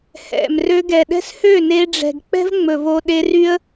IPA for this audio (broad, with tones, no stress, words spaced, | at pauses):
hɛ̰˨m rø˧ɡɛ˨ɗɛ̤˦s hø˦˨ne˧ɖ͡ʐɛ̤˨ɡ k͡pɛ̤˦vŋ͡mɵ˨vo˧ ɗe˧ry˦ə̯